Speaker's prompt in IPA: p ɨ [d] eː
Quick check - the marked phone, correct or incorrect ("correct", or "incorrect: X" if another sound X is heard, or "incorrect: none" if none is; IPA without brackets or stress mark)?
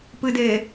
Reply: correct